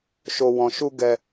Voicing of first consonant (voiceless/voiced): voiceless